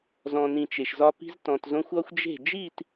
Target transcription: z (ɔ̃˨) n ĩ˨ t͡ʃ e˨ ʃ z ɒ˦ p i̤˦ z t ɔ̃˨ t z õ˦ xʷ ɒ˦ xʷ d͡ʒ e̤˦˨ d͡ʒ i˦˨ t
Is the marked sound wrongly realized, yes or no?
no